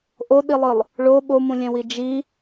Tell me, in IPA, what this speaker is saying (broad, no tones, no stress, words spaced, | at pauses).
ʔoɗilˠɯlˠ | ɭo ɓomũlʲɛ̃wi d͡ʒi